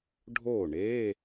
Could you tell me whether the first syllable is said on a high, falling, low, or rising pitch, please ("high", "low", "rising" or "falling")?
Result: falling